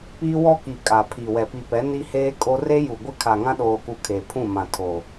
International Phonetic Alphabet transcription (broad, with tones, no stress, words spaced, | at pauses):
piː˦wɔ˦ ki˨ kʼa˨pʰi˨ wɛ˨pi˨pɛ˨˦ ni˦heː˦kʼo˦ re˦ju˨ɡʷɪ˦ kʰa˨ŋã˦ɗoː˨ku˨ kʰe˨pʰũ˦˨mã˨tʰo˨